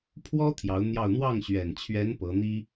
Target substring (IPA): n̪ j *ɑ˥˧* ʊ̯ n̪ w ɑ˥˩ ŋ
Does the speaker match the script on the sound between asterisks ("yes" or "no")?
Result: yes